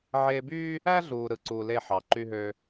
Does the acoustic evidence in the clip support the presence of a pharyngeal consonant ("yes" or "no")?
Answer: yes